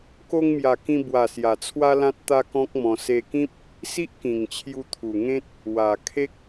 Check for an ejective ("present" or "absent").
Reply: absent